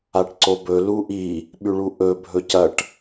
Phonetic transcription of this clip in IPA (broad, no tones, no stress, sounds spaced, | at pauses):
a ʈ ǀ o b ɵ l u ʔ i | ɓ ʉ ɭ u ʔ ɵ bʱ ɵ c ɐ ʈ